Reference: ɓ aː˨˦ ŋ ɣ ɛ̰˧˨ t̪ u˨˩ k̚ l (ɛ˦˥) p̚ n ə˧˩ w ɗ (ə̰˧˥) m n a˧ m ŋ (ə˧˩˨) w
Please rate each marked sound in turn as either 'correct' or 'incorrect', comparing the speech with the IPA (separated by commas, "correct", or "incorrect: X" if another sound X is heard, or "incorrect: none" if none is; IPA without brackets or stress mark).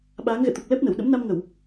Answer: correct, correct, correct